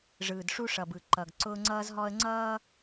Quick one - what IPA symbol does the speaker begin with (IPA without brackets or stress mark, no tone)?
ʐ